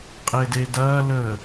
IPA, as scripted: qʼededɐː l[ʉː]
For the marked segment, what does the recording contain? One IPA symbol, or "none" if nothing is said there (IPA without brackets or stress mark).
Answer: əː